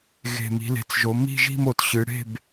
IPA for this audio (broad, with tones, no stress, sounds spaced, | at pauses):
ɣ e̤˨˩ m i̤˩˧ l e̤˩˧ t͡s ʒ o˩˧ m i̤˥˨ ʒ i̤˥˨ m o˩˧ t ɕ ɨ˩˧ ɽ e̤˥˨ b